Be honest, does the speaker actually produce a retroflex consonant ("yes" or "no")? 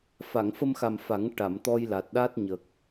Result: yes